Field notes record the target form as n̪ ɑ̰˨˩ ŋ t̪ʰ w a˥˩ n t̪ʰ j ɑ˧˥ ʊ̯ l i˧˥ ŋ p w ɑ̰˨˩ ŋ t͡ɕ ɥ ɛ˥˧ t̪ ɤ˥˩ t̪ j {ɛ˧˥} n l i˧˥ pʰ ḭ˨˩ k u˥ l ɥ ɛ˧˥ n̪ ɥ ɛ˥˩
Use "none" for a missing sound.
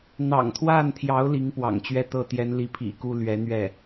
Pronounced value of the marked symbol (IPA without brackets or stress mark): ɛ˧˥